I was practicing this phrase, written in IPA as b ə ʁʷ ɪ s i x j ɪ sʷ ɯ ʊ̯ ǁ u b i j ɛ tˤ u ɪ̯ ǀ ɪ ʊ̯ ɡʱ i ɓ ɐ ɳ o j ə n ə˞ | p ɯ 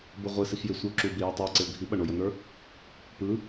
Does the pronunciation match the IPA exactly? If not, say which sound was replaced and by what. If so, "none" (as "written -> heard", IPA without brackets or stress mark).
none